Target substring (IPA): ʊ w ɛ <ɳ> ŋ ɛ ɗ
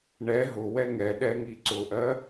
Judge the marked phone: incorrect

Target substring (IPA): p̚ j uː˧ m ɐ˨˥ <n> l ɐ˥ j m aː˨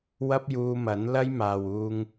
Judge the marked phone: correct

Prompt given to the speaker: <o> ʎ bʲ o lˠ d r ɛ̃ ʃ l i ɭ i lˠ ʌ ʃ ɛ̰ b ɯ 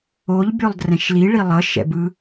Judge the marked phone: correct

